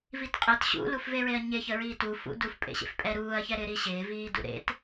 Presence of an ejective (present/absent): present